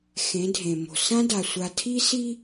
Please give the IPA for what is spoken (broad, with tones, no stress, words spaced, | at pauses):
xẽ˨˦dʱẽ˨mo̤˨ sã˦da˨sʷa˨tʰi˦ si˦